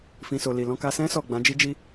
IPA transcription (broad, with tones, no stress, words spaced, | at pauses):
fĩ˨so˨ li˨ lɔ̃˧ka˧sɛ̃˦ sɔ˦˨ɡ͡bã˨˦ d͡ʒi˦d͡ʒi˦